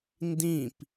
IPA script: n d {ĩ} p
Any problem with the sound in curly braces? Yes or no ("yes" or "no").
no